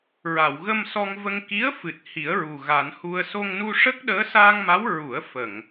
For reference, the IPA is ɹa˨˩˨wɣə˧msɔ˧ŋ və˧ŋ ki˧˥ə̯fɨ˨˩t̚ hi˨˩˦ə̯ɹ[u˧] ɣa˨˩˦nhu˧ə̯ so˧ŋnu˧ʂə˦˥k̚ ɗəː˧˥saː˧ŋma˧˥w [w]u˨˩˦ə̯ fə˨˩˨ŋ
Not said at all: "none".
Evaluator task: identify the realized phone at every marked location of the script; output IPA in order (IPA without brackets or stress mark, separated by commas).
u˨˩, ɹ